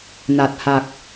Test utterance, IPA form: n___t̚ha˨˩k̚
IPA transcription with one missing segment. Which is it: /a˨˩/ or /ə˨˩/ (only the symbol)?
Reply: a˨˩